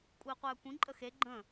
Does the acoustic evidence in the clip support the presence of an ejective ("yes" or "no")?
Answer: yes